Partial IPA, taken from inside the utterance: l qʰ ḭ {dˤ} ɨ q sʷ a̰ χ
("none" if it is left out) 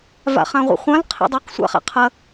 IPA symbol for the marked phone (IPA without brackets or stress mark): dˤ